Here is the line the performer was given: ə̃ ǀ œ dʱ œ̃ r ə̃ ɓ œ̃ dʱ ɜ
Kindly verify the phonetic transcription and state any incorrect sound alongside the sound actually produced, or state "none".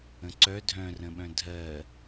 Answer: none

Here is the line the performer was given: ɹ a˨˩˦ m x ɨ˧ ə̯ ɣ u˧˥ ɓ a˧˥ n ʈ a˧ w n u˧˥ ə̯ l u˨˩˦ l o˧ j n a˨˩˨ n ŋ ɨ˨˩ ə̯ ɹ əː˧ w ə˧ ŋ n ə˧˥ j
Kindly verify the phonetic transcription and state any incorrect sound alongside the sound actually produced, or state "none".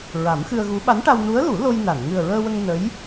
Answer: none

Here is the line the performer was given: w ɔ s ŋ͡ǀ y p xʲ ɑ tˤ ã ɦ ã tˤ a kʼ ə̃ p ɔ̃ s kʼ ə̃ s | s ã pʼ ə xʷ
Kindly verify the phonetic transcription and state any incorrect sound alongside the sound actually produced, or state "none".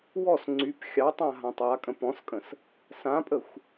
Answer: none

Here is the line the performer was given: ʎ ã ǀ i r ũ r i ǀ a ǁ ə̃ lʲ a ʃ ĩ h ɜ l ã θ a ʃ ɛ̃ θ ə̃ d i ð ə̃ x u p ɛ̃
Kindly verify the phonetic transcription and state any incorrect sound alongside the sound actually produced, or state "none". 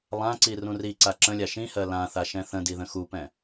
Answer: ʎ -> lˠ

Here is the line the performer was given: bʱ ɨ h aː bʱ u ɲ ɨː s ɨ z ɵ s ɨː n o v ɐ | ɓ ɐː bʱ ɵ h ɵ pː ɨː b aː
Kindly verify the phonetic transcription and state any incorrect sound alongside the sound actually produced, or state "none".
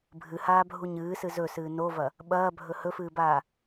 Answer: pː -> f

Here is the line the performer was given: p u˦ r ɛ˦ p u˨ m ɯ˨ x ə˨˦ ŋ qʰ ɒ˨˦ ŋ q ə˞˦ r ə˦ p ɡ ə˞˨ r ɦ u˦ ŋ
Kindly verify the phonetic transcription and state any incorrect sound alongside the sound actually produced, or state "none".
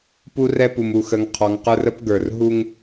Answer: ɯ˨ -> u˨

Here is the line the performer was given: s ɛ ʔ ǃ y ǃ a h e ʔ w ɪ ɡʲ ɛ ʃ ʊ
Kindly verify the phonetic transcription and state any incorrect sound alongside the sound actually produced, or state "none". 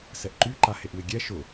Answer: none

